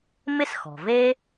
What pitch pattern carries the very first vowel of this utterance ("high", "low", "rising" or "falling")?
high